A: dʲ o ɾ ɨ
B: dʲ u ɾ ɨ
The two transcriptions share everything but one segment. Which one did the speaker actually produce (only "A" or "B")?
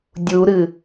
B